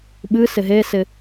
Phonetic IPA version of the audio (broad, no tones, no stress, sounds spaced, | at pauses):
ɓ ɨ s ɪ ɦ e s ɪ